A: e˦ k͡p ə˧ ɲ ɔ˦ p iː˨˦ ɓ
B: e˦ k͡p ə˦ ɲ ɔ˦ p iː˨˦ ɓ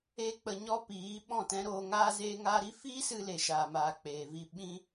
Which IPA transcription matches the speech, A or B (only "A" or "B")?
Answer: A